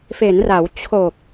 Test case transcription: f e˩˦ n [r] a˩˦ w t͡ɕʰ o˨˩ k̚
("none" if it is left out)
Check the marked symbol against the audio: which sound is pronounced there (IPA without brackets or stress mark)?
r